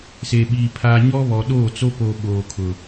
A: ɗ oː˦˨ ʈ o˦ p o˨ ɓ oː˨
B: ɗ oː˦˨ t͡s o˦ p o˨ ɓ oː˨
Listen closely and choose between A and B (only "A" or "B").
B